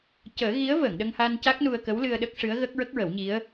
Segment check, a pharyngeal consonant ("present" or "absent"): absent